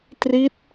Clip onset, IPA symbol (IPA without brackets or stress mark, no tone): t